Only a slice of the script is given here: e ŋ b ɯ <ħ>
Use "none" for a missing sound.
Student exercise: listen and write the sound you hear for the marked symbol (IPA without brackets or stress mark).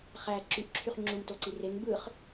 χ